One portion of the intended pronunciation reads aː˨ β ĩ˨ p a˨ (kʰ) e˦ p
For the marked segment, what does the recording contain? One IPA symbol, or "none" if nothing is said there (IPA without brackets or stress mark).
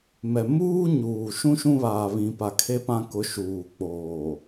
kʰ